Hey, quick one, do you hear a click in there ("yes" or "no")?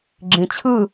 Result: yes